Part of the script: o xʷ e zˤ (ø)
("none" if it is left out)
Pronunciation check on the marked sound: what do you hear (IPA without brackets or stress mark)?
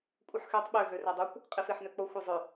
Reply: ø